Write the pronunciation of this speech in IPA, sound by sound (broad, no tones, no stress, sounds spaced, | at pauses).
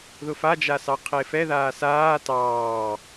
ð ʊ f a d͡ʒ a s ɑ qʰ e f ɛ ð aː s aː t ɑː